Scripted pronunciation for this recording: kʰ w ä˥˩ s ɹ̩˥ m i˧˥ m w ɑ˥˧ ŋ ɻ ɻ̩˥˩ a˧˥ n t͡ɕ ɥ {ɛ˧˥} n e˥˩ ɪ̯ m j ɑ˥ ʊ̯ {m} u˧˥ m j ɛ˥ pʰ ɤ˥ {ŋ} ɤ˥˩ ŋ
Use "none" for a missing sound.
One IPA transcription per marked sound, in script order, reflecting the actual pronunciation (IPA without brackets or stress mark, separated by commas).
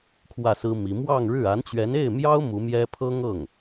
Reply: ɛ˧˥, m, ŋ